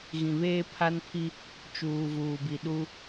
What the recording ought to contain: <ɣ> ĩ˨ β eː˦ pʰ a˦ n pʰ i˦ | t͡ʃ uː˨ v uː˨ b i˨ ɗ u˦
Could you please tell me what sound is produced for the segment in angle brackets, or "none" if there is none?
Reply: ɣ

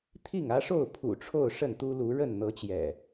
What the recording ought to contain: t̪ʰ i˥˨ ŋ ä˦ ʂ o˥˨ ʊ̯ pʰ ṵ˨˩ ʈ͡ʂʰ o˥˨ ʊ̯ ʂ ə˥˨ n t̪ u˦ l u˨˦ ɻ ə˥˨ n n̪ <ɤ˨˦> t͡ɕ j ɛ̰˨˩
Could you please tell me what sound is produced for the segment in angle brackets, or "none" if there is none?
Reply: ɤ˨˦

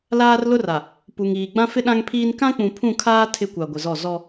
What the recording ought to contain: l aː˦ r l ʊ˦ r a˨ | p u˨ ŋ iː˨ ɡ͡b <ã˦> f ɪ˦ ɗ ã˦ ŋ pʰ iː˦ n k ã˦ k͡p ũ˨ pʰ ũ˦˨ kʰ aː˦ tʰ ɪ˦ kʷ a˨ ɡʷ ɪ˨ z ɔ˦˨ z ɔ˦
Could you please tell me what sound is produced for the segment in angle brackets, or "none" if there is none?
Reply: ã˦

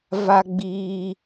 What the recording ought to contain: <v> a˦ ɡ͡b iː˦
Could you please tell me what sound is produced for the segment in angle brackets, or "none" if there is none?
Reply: v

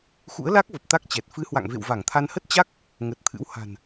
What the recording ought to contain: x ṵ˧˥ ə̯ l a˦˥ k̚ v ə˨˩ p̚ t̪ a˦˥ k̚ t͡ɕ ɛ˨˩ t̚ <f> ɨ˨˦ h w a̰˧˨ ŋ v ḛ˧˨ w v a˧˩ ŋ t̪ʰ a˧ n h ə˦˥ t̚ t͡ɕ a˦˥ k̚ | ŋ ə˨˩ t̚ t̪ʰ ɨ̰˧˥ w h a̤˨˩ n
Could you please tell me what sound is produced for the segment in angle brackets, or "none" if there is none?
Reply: f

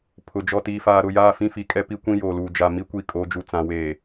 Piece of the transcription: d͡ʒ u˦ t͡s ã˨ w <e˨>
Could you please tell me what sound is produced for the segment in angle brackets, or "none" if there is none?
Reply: eː˨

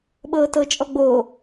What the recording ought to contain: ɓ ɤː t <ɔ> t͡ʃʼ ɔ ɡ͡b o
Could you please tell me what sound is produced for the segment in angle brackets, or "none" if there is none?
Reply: ɤ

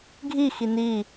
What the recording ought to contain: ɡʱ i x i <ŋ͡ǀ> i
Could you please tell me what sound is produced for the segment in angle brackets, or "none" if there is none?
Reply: n̪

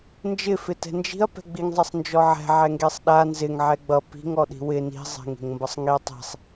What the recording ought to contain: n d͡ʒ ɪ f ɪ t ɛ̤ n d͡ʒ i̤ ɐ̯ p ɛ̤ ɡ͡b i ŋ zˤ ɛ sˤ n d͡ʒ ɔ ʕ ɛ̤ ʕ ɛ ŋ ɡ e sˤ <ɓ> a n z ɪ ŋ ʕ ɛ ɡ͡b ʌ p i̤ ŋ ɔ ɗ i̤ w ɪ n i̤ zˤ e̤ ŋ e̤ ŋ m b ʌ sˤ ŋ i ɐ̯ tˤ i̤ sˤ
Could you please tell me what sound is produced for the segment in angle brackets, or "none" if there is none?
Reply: ɗ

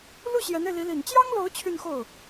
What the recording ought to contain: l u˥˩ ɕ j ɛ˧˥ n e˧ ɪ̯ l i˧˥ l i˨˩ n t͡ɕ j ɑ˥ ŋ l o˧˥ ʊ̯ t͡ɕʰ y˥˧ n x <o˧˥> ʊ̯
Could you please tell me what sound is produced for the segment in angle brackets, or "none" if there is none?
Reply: o˥˩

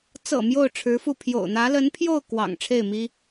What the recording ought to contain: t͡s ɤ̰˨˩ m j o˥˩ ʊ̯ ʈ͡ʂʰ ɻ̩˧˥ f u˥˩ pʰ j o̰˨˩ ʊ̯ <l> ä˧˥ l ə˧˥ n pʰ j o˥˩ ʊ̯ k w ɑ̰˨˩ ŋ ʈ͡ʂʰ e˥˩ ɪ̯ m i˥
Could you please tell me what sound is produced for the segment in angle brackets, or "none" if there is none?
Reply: n̪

